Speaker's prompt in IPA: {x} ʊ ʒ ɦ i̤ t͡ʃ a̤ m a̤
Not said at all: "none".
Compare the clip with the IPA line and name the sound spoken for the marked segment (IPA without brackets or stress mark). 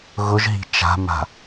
ɣ